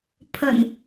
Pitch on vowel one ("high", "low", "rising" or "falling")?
low